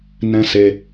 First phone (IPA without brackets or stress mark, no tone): n